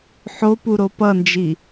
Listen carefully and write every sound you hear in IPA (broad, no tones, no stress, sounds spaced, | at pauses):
ħ o p u ɾ o p ʌ n d͡ʒ i